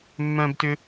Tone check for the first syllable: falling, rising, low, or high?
high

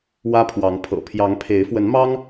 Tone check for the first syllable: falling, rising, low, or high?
high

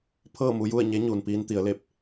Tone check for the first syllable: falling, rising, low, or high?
falling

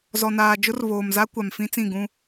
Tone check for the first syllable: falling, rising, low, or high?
low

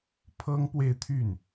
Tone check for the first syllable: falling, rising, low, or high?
high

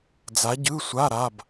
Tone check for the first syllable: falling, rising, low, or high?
rising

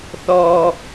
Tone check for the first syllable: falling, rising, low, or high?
low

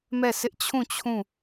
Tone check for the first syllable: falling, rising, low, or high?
falling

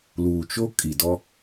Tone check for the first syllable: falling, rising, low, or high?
low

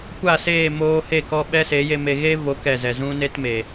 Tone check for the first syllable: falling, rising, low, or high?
falling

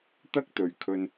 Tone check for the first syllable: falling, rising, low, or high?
high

